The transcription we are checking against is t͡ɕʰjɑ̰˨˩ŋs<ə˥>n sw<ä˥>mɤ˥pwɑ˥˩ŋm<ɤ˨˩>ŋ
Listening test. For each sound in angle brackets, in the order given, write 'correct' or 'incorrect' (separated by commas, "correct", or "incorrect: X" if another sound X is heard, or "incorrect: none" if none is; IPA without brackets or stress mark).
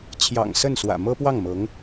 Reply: incorrect: ə˥˩, incorrect: ä̰˨˩, incorrect: ɤ˧˥